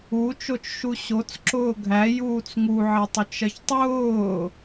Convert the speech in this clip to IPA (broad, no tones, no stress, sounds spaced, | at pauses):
u t͡ʃ o t͡ʃ ʃ u ɕ o t͡s ǁ ʊː ɡʱ æ j uː t͡s ŋ u ʕ ɐ tˤ u t͡ʃ ɐ ç tˤ ʊː